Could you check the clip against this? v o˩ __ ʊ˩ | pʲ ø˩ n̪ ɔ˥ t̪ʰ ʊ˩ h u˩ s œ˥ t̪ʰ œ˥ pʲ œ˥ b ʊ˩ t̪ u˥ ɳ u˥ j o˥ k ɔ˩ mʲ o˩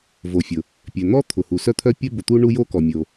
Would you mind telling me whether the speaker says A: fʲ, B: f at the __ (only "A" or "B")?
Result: A